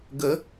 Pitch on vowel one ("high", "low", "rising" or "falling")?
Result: rising